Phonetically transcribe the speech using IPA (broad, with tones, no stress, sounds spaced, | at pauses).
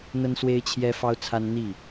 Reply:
n̪ ə˦ n s w e˦ ɪ̯ t͡ɕʰ j ɛ˦ f ɑ˦ ʊ̯ t͡sʰ a˦ n n̪ i˥˨